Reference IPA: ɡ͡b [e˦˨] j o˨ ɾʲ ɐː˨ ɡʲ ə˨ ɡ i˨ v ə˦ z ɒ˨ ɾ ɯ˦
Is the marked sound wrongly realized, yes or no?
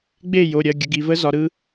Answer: no